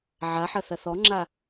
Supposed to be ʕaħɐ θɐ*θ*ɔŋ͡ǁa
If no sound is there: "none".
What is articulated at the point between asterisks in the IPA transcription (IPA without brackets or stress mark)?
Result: θ